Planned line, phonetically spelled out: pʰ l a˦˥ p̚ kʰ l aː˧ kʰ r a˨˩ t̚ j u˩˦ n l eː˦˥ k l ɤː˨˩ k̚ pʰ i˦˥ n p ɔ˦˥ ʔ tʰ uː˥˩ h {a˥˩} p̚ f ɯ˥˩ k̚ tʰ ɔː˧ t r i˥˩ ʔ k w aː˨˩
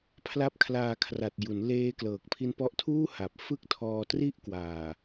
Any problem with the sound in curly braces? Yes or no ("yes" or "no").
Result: yes